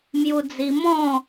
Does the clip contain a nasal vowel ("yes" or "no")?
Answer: yes